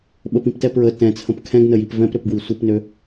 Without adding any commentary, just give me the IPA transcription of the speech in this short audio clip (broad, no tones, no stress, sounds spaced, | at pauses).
ɓ ə p ĩ p t ɛ p ɹ ə t ɛ̃ t͡sʰ ə̃ p kʰ ɛ̃ ɡ n ə j i p v ɛ̃ p ɾ ø p ɡ w i sʷ ɘ p n ø